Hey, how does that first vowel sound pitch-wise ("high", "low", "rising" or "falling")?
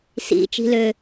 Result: low